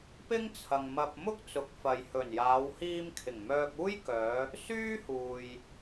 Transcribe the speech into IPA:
p ɪ˥ ŋ t͡sʰ ɐ˨ ŋ m ɐ˧ p̚ m ʊ˥ k̚ t͡s ʊ˨˥ k̚ f ɐ˨ j h ɵ˨˩ n j aː˨˧ w h iː˧ m kʰ ɪ˨˩ ŋ m œː˧ k̚ uː˥ j k œː˨˧ | s yː˥ h uː˨ j

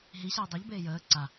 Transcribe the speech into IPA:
ɦ i ɕ əː dˤ i ʎ b eː j əː ǀ a

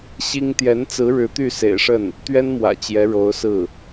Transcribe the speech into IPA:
ɕ i˥ ŋ t̪ j ɛ˧˥ n t͡s ɹ̩˧˥ ɻ ɻ̩˧˥ t̪ y˥˩ s ḛ˨˩ ɪ̯ ʂ ə˥˩ n | t̪ ɥ ɛ˥ n m w ä̰˨˩ t͡ɕ j ɛ˧˥ ɻ o˧˥ ʊ̯ s ɹ̩˥˩

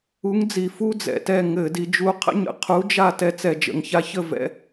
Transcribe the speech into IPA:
u˨˥ ŋ d͡z i˨˩ f u˦ d͡z ɛ̰˨˩ t ɛ˥˩ ŋ ɘ˧˩˧ d i˩˧ d͡ʒ u˨˥ qʰ ə̰˦ ɲ ə̰˨˩ qʰ u˨˥ d͡ʒ a˥˩ t ɛ˥˩ t͡s ɛ˧˩˧ d͡ʒ ə̰˩˧ ŋ ç a˨˥ ç ə˥˩ v ɛ̰˦

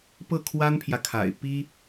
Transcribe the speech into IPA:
p ɤ˥˩ kʰ w a˥ n pʰ j ä˨ kʰ a̰˨˩ ɪ̯ p i˥

